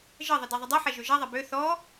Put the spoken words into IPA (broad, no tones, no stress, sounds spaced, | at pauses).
ʒ ə ðˤ ə d ɛ ðˤ ə dˤ ʉ ħ ɛ ʒ ø ʒ ɛ ðˤ ɛ b ø θ ɔ